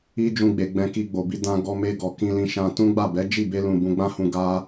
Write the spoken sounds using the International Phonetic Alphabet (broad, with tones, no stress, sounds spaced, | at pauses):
i˦ d͡ʒ ũ˧ ɡ͡b e˨ ɡ͡b ɛ̃˧ k i˧ ɡ͡b o˨ b i˧ d ã˧ ɡ ɔ˧ m e˧ ɡ ɔ˨ k ĩ˧ l ĩ˧ ʃ ã˧ t ũ˦ ɡ͡b a˦˨ b ɛ˨˦ d͡ʒ i˦˨ b e˧ l ũ˨ b ũ˧ ɡ͡b ã˦ h ũ˧ ɡ a˦